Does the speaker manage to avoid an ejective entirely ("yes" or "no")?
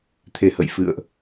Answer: yes